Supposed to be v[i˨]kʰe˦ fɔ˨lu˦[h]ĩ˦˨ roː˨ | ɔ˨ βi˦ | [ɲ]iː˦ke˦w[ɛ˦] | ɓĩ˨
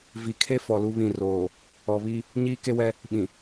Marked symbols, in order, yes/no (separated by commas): yes, no, yes, yes